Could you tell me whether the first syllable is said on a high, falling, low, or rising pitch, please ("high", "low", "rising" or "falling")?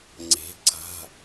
rising